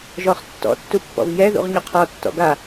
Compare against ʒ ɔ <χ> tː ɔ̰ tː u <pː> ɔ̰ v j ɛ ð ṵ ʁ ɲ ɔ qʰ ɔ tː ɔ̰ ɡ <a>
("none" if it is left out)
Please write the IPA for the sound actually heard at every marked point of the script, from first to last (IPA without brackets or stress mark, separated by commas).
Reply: χ, pː, a